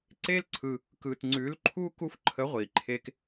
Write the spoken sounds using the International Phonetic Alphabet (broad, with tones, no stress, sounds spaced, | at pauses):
ǀ e˥ l ǀʰ ɯ˧ | k ɯ˧ t ŋ͡ǀ ʉ˧˥ l ǃʰ u˥ k u˥ f ǃʰ ə˧˥ ʁʷ i˩ ǃʰ e˧ k